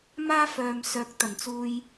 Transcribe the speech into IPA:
maː˥fœː˨msœː˨˥k̚ t̪ɐ˨˩nt͡suː˧j

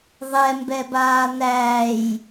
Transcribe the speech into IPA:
ðˤɛmbɛbaː n̪æːj

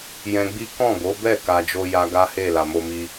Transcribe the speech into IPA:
jɛ̃˧ɡ͡bi˦ kɔ̃˦˨ɡo˨˦bɛ˦˨ ka˧d͡ʒo˦ja˦ ɡa˦he˦˨ la˨mo˧mi˧

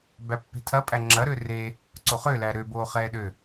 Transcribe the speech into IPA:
bæpːe̤tʰɐpʼæ ŋ͡ǁɐɾø re | ǀoχø læɾøboː χɛːɗø

